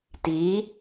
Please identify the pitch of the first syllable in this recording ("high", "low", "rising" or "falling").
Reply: rising